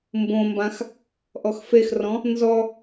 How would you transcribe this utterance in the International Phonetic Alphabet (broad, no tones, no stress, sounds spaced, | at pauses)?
m b õ m b ã x | ʔ ɔ x f e x r ɔ̃ | n z ɔ